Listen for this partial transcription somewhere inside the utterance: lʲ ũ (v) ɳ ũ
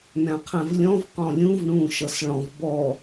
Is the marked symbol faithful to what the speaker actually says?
yes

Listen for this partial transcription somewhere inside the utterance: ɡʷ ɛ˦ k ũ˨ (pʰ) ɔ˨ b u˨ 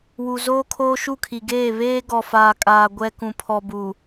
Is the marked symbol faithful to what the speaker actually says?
yes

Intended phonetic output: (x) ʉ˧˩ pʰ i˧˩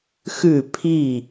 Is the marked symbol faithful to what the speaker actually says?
yes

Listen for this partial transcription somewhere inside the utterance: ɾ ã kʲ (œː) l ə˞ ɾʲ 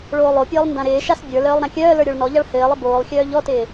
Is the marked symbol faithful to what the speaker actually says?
yes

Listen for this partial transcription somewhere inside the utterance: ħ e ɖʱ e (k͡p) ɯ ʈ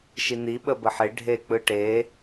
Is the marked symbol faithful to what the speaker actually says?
yes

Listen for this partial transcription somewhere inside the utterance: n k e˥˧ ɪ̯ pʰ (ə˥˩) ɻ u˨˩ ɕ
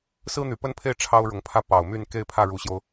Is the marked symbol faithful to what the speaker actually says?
no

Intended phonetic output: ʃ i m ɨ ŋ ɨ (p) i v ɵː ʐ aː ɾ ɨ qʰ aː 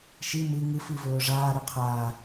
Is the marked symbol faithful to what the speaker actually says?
no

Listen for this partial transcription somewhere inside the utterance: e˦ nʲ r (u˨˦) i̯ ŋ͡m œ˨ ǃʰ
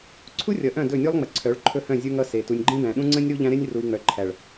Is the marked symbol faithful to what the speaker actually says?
no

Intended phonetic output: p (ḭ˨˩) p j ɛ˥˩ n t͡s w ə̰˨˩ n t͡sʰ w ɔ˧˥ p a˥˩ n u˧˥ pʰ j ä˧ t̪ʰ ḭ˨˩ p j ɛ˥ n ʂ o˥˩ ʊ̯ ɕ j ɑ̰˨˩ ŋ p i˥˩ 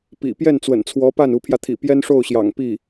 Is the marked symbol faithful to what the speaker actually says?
yes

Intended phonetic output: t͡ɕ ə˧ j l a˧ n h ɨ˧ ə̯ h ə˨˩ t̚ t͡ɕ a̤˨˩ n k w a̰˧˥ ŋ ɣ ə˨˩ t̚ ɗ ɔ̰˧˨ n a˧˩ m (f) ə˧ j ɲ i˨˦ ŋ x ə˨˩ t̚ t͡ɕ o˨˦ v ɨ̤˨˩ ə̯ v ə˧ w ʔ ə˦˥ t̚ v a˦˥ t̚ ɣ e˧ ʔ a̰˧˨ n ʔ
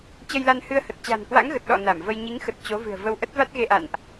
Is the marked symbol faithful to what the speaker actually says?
no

